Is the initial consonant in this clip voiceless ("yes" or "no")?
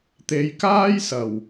yes